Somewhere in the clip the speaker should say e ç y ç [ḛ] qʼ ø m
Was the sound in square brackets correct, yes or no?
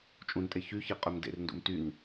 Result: no